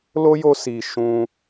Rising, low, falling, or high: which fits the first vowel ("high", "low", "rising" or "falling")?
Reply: high